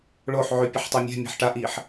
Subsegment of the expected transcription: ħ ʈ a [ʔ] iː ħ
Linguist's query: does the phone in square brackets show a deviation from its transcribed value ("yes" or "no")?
no